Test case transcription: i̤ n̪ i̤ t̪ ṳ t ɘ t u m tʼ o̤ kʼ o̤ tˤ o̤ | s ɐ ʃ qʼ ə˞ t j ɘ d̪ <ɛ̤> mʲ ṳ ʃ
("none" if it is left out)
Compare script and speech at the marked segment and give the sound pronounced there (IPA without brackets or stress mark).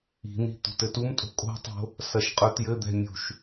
ɛ̤